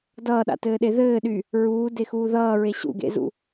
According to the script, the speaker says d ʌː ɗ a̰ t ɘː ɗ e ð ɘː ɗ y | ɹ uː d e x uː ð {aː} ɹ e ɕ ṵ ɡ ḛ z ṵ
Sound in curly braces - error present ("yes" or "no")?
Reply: yes